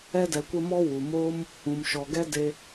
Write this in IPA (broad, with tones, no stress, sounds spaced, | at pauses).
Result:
ɛ˧ d ɛ˨ kʷ ə˧ m ɔ˧ w u˨ m oː˦ m | ũ˨ m ʃ ɔ˨ ɡ ɛ˦ d e˧